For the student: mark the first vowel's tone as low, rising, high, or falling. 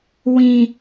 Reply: low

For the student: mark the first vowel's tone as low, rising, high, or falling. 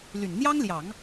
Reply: low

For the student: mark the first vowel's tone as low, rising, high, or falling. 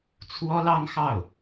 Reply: high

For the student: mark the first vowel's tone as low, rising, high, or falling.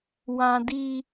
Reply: high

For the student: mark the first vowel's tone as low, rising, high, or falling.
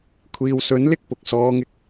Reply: low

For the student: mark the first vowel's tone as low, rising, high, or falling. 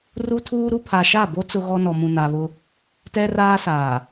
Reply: high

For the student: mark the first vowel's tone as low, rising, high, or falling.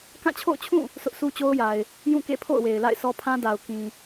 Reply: falling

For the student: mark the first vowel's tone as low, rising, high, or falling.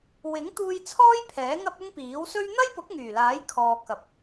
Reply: rising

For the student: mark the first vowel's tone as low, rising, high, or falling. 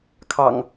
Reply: low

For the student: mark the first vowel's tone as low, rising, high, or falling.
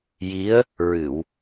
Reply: rising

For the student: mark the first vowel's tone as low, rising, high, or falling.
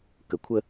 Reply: low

